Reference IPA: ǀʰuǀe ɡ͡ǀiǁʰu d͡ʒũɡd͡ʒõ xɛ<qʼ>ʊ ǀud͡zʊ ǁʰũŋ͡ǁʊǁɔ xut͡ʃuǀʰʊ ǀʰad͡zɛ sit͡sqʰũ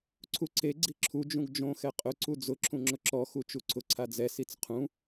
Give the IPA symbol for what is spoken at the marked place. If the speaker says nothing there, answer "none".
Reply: qʼ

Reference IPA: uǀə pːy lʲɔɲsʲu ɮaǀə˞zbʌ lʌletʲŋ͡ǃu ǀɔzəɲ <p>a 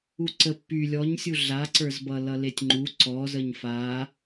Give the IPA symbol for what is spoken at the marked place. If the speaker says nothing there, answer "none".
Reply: f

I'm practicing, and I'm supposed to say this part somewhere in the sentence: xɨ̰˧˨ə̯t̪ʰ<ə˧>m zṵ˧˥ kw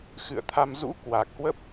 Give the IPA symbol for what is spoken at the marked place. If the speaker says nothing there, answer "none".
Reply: a˧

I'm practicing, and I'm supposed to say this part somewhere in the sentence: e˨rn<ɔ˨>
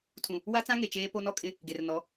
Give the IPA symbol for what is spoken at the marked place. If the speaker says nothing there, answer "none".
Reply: ɔ˨˦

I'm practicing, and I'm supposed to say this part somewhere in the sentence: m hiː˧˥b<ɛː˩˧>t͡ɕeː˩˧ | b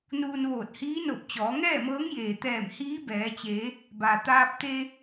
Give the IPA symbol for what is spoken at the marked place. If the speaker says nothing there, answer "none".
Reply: ɛː˩˧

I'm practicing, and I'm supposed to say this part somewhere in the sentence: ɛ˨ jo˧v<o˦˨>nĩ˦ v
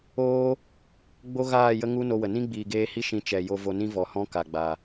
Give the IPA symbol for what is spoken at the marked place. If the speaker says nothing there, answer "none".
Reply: o˧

